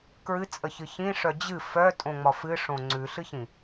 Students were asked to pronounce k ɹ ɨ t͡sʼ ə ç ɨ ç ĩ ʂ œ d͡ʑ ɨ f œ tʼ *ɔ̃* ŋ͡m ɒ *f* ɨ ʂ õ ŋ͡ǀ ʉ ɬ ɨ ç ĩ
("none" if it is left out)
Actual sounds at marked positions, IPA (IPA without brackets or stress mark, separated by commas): õ, f